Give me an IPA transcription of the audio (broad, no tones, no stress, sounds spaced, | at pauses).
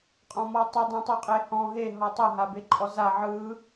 qʼ ɔ̃ m ɔ tˤ i dˤ õ tˤ u qʼ e h ɔ̃ ɦ e ɦ ɔ tˤ ɤ ɦ a b e ǃʼ ɔ z a ʕ ɯ